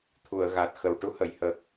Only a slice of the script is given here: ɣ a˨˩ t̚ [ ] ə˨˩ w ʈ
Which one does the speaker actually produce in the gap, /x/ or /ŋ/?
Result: x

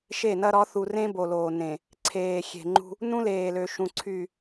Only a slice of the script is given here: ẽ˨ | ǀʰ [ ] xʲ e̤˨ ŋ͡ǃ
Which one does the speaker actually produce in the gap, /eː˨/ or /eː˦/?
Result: eː˨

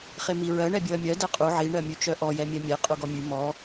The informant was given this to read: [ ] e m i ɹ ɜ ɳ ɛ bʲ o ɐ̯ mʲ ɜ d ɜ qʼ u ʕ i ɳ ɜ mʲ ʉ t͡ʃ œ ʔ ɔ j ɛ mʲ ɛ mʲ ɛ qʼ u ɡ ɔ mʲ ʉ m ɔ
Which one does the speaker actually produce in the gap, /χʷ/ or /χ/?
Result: χ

